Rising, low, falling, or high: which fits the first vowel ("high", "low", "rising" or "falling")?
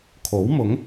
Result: rising